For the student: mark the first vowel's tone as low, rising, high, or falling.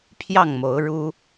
falling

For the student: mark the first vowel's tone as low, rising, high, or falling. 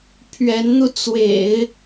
rising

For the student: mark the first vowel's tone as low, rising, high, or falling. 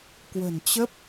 low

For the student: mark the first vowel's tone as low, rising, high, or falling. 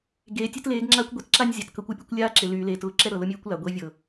low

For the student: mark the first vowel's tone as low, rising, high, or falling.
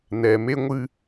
low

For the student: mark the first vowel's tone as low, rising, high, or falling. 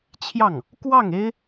falling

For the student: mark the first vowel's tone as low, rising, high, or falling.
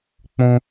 high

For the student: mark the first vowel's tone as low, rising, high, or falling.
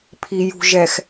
low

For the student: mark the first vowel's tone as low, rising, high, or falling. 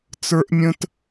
high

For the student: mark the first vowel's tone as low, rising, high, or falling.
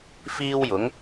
high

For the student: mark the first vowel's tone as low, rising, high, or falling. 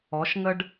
rising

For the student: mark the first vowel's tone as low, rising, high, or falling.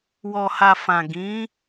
low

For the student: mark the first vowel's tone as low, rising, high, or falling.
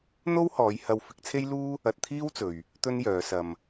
high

